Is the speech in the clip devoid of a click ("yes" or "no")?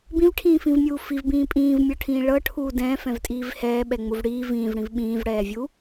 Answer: yes